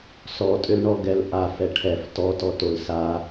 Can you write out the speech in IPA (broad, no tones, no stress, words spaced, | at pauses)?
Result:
sɔtʼʏlɳɔ ɡɛlʔa fɛʈʰɛf tɔtɔ tolsa